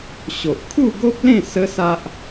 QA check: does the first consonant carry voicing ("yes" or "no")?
no